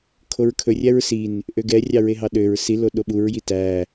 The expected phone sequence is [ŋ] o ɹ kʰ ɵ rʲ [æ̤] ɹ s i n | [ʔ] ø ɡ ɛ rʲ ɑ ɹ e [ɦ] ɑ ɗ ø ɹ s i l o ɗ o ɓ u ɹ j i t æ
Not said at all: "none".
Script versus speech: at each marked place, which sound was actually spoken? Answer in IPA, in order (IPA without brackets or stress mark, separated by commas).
kʰ, æ, ʔ, ɦ